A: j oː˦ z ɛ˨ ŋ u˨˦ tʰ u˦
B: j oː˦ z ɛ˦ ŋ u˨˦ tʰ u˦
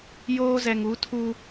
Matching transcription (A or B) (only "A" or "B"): A